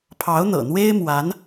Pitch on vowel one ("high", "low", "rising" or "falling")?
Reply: rising